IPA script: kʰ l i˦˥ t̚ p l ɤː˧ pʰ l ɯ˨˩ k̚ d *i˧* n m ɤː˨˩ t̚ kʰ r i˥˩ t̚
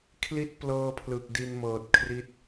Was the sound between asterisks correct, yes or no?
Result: yes